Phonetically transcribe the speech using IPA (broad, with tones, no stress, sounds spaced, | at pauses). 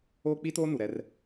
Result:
oː˦ k͡p i˦ t oː˦ n u˨ ɾ ɛ˦ r